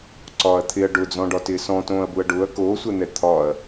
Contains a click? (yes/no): yes